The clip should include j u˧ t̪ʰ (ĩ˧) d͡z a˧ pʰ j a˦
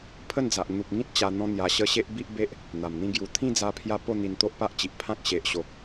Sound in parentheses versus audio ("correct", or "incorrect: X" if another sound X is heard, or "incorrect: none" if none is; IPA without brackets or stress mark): incorrect: ĩ˥˧